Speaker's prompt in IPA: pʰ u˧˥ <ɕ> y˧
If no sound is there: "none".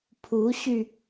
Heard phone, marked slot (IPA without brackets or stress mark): ɕ